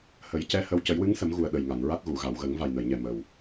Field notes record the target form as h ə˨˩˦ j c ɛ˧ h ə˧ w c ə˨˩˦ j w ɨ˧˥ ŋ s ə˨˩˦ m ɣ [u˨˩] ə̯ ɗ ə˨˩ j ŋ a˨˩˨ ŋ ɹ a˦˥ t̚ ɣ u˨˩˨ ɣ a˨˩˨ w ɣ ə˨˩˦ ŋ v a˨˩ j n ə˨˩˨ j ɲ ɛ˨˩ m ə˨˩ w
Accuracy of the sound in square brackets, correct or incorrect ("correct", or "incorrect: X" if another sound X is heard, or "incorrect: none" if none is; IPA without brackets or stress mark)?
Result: correct